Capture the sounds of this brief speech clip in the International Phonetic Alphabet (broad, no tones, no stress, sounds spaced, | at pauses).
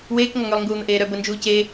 w eː k ŋ ɔ ŋ ø lˠ ŋ ɡ uː n̪ ə ʔ eː ɾ œ b ə n d͡ʒ uː c e